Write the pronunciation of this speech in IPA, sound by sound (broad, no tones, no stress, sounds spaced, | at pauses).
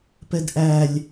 p ɛ d ʔ æ lʲ